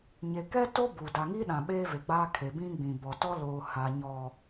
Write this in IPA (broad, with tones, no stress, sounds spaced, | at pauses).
ɲ e˨ k ɛ˦ t o˦ b u˨ d a˨ ŋ i˦ ɗ ã˨ ɓ eː˦ v e˨ ɡ͡b aː˦ kʰ e˨ b ĩ˦ ɡ͡b ĩ˨ b ɔ˨ t ɔ˦ l oː˨ h a˨ ɲ ɔ˨